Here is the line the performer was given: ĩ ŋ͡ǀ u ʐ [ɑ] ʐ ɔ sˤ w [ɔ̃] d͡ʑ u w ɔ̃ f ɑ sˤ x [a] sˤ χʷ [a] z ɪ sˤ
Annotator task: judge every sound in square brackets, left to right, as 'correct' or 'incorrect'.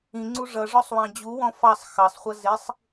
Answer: incorrect: ʌ, incorrect: ɑ̃, incorrect: ɑ, incorrect: ʌ

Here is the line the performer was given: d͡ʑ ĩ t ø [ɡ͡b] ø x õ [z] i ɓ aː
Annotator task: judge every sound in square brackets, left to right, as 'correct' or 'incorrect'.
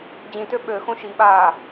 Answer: incorrect: ɓ, incorrect: ʃ

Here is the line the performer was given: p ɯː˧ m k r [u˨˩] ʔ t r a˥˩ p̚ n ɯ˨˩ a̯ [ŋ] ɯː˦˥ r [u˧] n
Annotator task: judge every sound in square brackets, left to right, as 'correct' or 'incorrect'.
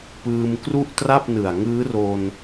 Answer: incorrect: u˥˩, correct, incorrect: o˧

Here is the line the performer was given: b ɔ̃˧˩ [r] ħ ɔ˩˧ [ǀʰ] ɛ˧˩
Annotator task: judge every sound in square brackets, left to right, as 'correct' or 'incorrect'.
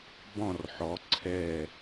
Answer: correct, correct

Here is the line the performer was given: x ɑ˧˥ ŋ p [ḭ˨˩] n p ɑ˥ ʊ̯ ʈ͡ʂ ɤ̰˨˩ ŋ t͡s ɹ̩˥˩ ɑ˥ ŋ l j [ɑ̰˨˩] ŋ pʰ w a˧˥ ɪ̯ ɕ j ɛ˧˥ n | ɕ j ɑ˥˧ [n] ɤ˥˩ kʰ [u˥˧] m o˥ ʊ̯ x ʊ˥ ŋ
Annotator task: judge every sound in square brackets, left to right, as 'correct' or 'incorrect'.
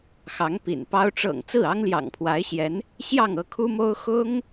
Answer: correct, correct, incorrect: ŋ, incorrect: u˥

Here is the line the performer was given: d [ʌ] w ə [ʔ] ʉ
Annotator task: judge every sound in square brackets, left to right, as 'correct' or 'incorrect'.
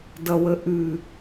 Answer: correct, correct

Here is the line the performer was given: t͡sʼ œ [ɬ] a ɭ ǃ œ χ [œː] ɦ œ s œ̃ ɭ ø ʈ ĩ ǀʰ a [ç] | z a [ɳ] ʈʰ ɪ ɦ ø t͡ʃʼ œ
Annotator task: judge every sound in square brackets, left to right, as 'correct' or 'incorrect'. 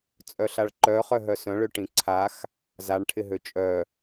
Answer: correct, incorrect: œ, incorrect: x, correct

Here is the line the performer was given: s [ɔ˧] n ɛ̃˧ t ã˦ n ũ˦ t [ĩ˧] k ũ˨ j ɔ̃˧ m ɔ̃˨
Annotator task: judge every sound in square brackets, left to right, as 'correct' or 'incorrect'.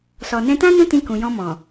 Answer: incorrect: ɔ˨, correct

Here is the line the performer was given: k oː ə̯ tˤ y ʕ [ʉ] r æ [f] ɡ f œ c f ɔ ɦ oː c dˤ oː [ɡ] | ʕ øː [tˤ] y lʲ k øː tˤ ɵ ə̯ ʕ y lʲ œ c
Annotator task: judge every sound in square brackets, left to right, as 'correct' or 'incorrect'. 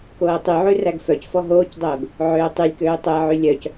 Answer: correct, incorrect: none, correct, correct

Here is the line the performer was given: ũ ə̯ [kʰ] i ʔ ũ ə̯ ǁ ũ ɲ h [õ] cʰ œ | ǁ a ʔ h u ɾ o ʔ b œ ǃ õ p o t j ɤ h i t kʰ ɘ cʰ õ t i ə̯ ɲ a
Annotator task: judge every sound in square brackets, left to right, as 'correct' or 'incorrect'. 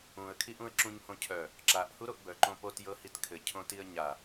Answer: correct, correct

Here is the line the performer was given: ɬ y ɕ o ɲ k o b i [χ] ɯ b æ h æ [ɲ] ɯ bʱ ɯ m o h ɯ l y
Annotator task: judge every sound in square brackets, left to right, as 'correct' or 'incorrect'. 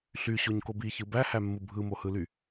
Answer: incorrect: ç, incorrect: mː

